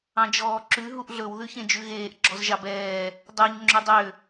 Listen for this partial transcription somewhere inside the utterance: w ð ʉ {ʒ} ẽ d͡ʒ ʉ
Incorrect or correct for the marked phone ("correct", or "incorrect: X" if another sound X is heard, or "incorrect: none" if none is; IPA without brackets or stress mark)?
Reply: incorrect: ç